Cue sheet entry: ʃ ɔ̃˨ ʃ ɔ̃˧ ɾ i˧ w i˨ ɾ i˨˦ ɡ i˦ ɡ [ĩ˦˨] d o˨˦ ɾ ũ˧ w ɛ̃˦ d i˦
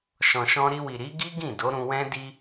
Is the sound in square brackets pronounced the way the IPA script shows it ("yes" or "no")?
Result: yes